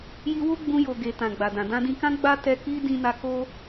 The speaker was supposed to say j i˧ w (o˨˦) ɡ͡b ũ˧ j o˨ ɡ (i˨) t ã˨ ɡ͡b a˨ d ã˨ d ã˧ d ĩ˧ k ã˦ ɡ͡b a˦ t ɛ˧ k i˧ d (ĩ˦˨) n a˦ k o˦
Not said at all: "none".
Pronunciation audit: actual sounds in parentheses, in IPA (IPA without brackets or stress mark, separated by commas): o˦, e˨, ĩ˦